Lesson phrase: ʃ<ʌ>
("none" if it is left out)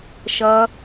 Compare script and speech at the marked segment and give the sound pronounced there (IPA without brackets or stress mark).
ʌ